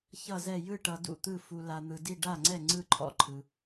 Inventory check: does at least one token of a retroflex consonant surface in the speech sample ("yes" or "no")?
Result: yes